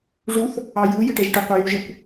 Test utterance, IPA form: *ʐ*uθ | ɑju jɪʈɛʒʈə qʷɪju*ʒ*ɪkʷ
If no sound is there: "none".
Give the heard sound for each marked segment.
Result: ʐ, ʒ

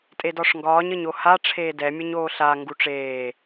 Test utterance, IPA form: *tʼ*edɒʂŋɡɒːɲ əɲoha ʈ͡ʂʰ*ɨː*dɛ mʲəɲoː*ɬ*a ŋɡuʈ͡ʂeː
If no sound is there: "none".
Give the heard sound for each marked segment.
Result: tʼ, eː, ɬ

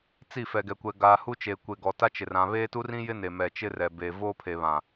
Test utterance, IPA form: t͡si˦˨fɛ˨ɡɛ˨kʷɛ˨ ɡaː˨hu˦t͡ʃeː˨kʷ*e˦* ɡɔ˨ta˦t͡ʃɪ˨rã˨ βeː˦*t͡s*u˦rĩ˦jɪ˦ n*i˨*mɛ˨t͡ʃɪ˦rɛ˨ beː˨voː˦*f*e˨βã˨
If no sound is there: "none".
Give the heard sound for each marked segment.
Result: e˨, t, e˨, pʰ

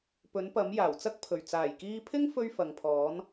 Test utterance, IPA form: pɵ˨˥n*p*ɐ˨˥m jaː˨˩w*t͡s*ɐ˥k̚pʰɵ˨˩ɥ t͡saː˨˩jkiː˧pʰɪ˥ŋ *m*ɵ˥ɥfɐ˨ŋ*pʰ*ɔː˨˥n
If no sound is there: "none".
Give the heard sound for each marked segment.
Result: p, t͡s, f, pʰ

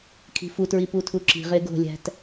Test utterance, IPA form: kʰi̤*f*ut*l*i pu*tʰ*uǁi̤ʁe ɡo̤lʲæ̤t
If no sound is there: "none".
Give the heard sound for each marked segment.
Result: f, ɹ, tʰ

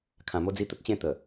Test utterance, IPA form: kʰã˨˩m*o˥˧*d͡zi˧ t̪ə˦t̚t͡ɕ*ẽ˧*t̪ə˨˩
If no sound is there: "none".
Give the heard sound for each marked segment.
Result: o˧, ẽ˥˧

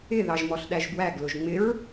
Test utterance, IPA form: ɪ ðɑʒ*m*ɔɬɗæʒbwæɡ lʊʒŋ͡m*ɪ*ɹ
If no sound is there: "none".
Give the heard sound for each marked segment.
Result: m, ɪ

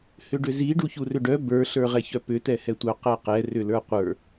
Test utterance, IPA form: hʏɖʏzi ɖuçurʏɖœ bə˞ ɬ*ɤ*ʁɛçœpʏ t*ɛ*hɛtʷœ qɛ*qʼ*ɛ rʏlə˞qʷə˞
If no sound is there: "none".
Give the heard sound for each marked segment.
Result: ə˞, ɛ, q

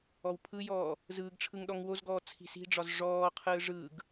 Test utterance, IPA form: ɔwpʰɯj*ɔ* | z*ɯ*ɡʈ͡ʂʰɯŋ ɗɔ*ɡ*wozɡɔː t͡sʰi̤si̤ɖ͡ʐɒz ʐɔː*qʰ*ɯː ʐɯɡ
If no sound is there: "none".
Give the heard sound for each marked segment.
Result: ɔː, ɯː, ŋ, qʰ

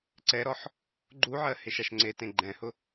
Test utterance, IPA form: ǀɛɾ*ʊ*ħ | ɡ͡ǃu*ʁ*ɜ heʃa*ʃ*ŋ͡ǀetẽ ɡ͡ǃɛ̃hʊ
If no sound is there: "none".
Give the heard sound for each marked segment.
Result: ɔ, ʕ, ʃ

